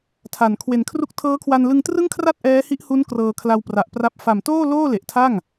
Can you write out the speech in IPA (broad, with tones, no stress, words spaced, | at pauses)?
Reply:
tʰa˨˩n kʰwe˩˦nkʰru˥˩k̚ tʰɤː˦˥kʰwa˧nlɯ˧ŋ trɯ˥˩ŋkʰra˥˩t̚ ʔɛː˦˥hi˦˥ʔhu˦˥n krɤː˧kʰla˧wpra˨˩ʔpra˦˥p̚ fa˨˩mtoː˥˩ loː˥˩le˨˩ʔtʰa˥˩ŋ